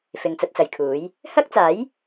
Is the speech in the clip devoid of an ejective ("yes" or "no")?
yes